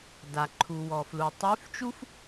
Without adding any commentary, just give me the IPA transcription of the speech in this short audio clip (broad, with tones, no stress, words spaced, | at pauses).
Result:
da˩ǃʰu˩wɔ˩ flu˩tˤy˧˥ft͡ʃu˥f